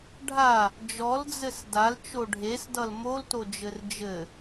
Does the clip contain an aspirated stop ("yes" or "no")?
no